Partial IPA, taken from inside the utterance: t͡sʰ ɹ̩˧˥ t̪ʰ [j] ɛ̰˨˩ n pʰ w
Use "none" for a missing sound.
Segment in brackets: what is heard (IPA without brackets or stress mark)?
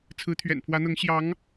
ɥ